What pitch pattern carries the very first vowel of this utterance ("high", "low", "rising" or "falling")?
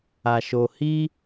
low